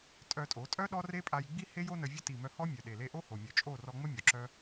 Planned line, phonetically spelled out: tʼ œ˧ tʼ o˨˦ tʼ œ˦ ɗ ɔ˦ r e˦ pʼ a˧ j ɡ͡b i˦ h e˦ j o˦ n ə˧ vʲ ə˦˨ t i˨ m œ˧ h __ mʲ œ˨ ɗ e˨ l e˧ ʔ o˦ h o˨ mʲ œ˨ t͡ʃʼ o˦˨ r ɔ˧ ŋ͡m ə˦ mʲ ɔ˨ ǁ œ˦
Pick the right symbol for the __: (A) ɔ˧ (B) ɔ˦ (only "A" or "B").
B